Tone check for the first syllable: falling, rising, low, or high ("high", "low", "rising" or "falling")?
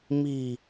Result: low